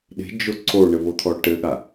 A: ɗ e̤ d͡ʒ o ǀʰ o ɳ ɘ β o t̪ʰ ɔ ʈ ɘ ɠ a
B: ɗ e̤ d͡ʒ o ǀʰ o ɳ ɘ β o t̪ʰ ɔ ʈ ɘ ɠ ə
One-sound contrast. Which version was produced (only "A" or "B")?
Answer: A